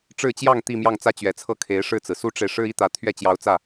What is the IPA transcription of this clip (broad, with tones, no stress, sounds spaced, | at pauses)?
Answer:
ʈ͡ʂ ɻ̩˥˧ t͡ɕ j ɑ˥˧ ŋ t̪ i˥˧ m j ɑ˥˩ ŋ t͡s ä˥ t͡ɕ ɥ ɛ˨˩ t͡sʰ ɤ˥˩ kʰ e˧˥ ɪ̯ ʂ ɻ̩˥˩ t͡s ɹ̩˩ s u˥ ʈ͡ʂ e˨ ɪ̯ ʂ ɻ̩˥ i˥ t̪ ä˧˥ t̪ʰ ɥ ɛ˥˩ t͡ɕ j ɑ˧˥ ʊ̯ t͡s ä˥˩